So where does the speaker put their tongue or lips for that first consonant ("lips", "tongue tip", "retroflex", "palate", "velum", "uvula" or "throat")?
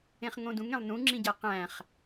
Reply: uvula